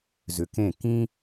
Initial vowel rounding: rounded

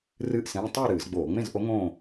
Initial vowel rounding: unrounded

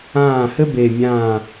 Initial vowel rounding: unrounded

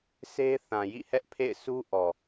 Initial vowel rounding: unrounded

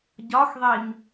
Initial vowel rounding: rounded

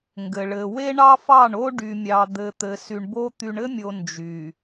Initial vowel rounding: unrounded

